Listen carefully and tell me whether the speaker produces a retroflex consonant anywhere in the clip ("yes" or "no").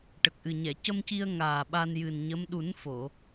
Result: yes